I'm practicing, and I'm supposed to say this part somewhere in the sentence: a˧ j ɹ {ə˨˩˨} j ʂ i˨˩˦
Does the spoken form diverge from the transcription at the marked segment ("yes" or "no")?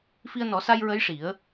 yes